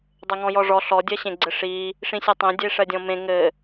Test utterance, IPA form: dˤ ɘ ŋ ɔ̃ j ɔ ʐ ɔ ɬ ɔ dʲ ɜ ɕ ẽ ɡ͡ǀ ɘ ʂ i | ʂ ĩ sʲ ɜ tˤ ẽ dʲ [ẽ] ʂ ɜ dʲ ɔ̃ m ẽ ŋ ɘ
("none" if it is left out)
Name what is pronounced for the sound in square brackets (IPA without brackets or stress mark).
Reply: e